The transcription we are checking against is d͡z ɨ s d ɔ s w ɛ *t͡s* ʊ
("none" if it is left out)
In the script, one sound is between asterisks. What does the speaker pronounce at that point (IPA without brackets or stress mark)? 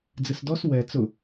t͡s